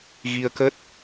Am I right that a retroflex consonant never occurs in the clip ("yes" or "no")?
yes